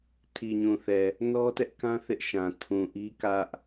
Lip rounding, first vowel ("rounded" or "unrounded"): unrounded